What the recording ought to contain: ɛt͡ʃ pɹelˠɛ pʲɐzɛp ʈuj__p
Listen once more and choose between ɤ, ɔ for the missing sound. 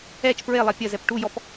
ɔ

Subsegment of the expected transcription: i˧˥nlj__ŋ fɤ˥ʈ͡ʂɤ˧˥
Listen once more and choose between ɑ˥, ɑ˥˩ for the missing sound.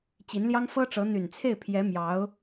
ɑ˥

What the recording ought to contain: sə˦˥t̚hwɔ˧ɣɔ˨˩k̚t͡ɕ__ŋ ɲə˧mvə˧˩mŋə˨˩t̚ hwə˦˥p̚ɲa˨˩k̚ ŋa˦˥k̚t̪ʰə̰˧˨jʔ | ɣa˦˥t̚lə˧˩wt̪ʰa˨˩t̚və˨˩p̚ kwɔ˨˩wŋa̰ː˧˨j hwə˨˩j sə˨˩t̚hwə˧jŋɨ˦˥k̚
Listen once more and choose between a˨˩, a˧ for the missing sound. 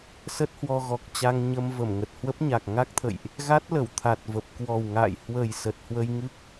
a˧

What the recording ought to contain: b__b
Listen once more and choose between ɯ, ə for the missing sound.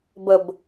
ə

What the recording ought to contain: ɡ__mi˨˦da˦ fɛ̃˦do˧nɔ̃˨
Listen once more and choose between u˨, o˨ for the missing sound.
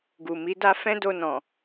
u˨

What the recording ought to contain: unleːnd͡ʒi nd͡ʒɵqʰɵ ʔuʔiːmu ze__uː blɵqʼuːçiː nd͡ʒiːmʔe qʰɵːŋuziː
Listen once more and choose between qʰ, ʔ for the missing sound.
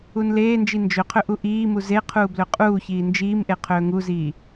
qʰ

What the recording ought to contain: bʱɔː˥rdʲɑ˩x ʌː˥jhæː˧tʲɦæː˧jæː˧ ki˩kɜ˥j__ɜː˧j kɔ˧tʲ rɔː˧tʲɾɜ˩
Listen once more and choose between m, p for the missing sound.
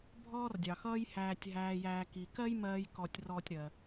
m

